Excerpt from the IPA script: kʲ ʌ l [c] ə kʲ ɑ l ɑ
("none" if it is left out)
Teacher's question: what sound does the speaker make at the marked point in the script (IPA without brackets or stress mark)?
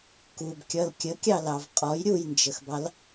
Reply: kʲ